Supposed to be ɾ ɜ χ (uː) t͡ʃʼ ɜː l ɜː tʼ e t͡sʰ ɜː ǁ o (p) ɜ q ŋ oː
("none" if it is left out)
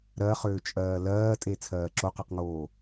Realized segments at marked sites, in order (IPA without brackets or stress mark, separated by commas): ʏː, q